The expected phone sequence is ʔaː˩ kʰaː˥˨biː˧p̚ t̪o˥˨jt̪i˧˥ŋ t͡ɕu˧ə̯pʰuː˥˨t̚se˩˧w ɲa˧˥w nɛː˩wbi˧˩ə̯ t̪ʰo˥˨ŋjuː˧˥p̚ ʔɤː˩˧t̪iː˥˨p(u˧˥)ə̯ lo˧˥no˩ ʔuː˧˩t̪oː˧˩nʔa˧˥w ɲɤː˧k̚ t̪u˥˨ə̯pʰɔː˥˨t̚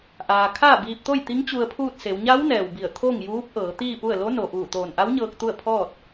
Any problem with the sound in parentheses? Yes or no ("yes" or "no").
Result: yes